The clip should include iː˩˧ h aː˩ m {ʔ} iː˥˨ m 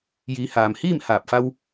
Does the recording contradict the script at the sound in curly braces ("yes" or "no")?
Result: yes